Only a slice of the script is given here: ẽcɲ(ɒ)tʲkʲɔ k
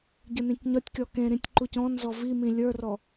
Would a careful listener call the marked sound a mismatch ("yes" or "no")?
no